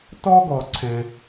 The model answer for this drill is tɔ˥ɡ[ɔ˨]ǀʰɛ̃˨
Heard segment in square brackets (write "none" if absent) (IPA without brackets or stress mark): ɔ˨